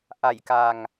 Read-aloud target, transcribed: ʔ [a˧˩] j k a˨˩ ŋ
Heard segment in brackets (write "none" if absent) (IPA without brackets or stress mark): a˧˩